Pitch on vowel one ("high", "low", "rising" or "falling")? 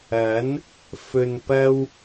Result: rising